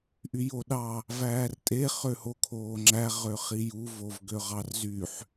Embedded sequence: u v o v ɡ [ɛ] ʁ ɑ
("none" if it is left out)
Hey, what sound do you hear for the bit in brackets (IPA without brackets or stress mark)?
ø